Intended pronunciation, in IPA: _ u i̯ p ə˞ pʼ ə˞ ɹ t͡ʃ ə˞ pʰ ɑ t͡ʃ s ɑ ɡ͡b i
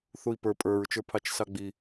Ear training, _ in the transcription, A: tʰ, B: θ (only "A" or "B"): B